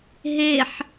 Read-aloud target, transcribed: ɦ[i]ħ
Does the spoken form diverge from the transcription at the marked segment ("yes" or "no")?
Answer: yes